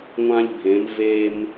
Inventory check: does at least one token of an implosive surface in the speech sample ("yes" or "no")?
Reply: no